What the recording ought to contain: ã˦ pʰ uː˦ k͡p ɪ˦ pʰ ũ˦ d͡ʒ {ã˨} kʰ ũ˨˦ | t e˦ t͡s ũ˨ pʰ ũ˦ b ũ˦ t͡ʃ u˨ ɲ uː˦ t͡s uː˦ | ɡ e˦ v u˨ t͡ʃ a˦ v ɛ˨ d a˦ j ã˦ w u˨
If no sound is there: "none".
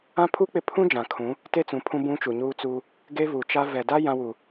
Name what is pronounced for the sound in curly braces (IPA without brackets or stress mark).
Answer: ã˨